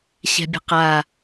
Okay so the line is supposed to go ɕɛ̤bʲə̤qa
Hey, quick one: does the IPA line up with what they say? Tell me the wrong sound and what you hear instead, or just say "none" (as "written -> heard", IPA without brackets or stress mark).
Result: none